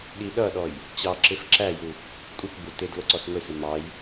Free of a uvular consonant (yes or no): yes